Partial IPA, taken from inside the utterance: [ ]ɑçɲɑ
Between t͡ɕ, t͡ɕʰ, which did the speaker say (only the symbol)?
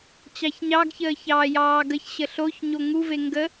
t͡ɕ